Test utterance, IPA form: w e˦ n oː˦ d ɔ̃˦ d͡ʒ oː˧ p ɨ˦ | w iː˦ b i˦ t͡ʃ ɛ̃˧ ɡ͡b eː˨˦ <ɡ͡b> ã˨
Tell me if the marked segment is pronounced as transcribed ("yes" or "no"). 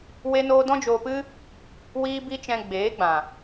yes